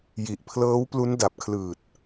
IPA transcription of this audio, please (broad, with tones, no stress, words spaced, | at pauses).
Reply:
ji˨˩ʔpʰlɤː˦˥wplu˦˥n da˨˩p̚kʰlɯː˨˩t̚